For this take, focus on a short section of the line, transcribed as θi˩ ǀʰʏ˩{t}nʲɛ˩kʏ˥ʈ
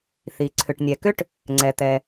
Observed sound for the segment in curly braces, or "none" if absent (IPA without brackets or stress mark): ʈ